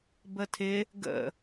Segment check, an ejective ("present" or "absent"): absent